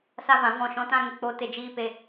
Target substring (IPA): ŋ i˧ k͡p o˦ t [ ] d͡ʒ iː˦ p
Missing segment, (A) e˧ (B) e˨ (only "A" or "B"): A